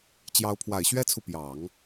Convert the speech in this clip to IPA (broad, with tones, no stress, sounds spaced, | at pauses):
t͡ɕ j ɑ˧˥ ʊ̯ pʰ w a˨˩ ɪ̯ ɕ ɥ ɛ˥ t͡sʰ u˨ p j ɑ˨˩˦ ŋ